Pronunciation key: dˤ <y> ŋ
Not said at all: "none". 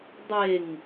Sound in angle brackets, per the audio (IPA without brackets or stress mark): e